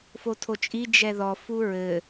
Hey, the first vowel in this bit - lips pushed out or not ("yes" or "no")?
yes